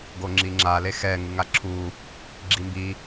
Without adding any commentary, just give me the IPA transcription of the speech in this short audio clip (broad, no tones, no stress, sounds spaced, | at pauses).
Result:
ɡ o ŋ͡ǁ i ŋ͡ǁ a l e x ɛ ŋ ɯ ŋ a ǁʰ u | ɡ͡ǁ i m b i